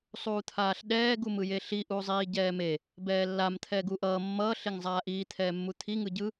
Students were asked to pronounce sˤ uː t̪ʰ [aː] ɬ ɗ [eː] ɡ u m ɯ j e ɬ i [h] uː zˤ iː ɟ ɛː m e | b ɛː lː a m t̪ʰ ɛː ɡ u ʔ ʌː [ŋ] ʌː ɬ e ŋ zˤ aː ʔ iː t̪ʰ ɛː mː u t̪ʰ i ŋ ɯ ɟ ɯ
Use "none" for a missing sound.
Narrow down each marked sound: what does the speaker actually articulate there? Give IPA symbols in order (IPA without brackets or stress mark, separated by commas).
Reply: aː, ɛː, ʔ, mː